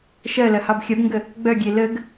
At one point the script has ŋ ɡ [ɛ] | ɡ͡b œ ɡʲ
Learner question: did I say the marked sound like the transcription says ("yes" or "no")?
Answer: no